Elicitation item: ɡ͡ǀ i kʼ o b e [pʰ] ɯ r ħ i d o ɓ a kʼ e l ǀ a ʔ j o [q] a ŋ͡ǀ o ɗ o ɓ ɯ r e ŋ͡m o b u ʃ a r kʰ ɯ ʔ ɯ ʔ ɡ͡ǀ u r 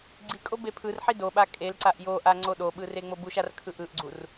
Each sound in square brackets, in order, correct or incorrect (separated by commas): correct, incorrect